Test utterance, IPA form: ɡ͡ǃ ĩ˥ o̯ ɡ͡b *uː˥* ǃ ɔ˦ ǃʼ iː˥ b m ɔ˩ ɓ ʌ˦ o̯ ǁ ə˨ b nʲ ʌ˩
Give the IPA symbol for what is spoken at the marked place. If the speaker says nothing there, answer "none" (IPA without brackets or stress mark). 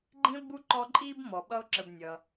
u˥